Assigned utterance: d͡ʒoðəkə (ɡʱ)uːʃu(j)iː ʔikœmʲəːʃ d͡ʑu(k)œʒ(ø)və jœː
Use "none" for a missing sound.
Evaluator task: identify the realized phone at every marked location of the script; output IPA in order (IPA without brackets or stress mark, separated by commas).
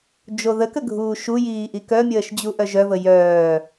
ɡʱ, j, ʔ, œ